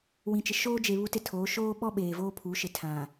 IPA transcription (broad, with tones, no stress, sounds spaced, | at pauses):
w ĩ˨ t͡ʃ ɪ˨ ʃ oː˦ d͡ʒ e˨ β u˦ t ɪ˦ tʰ oː˨˦ ʃ oː˦ ɓ ɔ˦ ɓ eː˨ v oː˦ pʰ u˨˦ ʃ ɪ˨ tʰ ã˨